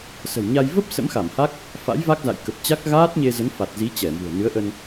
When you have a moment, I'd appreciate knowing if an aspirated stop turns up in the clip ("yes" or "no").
no